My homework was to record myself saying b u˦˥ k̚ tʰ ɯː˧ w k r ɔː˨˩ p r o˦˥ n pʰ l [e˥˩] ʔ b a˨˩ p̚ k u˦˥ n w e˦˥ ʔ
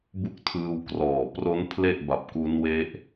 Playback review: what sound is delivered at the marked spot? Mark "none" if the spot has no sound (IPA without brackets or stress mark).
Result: e˥˩